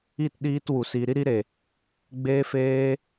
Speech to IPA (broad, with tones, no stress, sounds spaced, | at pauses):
i˦˨ t ɗ iː˧ t w u˨ s i˨ ɾ i˧ ɾ i˧ ɾ e˨ | ɡ͡b eː˧ f eː˧